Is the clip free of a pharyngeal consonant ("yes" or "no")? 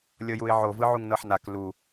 no